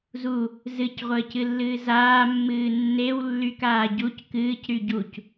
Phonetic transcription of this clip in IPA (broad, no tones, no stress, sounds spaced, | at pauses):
z u | z ɨ c ʁʷ əː c ɨ lː ɨː z aː mː ɨː nː e w lː y k aː ɟ u c k ɨː c ɾ y ɟ u c